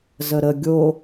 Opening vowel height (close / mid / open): mid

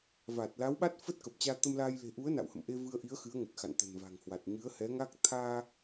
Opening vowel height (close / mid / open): open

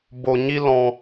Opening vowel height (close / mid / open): mid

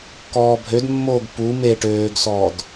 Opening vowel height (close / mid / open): mid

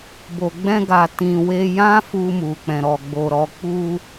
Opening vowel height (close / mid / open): mid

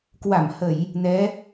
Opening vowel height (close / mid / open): open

